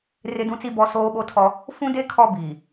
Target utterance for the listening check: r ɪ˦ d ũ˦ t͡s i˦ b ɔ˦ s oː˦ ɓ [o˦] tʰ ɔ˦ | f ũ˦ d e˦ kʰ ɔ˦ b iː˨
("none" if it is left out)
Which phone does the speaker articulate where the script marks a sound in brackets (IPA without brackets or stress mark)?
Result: o˦